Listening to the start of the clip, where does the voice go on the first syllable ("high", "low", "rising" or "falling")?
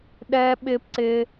high